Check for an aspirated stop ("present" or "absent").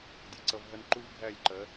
absent